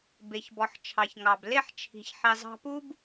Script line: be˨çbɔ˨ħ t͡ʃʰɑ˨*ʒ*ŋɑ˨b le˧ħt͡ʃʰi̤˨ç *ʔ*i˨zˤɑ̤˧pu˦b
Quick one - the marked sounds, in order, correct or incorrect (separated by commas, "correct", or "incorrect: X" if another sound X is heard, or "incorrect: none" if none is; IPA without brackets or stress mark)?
incorrect: ç, incorrect: ħ